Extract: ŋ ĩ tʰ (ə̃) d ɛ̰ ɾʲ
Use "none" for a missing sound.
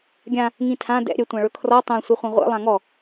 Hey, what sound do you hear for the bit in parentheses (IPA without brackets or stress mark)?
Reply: ã